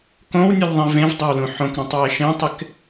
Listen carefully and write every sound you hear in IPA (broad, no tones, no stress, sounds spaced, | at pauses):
k õ w nʲ u lʲ ðˤ ĩ v ẽ v dˤ e w l ũ ħ õ k ɾ ũ tˤ w e ʃ ẽ tˤ ɪ k